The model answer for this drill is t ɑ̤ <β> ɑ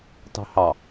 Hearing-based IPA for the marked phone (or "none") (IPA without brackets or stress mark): h